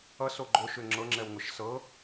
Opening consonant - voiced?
no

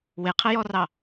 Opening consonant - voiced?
yes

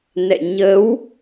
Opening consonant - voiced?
yes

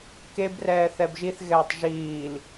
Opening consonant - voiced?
no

